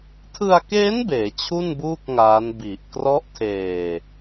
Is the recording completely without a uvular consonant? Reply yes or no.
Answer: yes